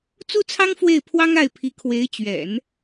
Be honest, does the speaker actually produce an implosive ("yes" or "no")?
no